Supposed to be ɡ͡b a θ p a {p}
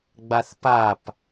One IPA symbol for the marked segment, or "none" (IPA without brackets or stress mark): p